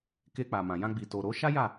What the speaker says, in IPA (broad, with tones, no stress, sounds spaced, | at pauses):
k e˧ k͡p a˨ m ã˨ j ã˧ ɡ͡b i˨ t o˨ ɾ o˨˦ ʃ a˦ j a˦˨